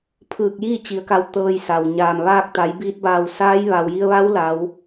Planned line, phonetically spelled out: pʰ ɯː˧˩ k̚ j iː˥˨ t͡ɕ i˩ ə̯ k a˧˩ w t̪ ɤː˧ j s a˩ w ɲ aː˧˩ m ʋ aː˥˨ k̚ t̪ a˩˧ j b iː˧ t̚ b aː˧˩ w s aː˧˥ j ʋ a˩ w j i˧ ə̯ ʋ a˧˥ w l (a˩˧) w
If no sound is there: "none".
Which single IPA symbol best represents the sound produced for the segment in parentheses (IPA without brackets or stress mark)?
a˩˧